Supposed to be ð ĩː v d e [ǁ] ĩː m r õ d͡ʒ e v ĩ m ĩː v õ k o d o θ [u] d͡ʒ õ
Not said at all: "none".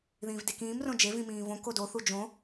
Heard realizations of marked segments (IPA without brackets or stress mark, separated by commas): k, u